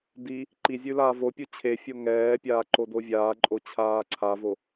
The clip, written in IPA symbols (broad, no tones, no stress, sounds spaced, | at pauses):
d i | ǃ i zʲ ʉ l aː v o pʲ u t͡ɕʰ e fʲ o ŋ ɛː pʲ aː ǃ o d o vʲ aː ǃʼ o t͡ɕʰ aː ǀʰ a v o